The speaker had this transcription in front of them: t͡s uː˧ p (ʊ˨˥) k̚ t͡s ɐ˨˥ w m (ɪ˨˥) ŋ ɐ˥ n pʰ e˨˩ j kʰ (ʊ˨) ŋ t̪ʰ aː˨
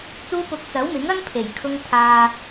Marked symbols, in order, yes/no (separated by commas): no, yes, no